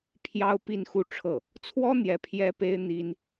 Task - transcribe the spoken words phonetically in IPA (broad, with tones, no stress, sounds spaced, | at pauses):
pʰ j ɑ˥ ʊ̯ p i˥˧ n x u˥˧ ʈ͡ʂʰ ɤ˥˩ | t͡sʰ w ɔ˥ n̪ j ɛ˧˥ pʰ j ɛ˥ p e˥ ɪ̯ n̪ i˥ n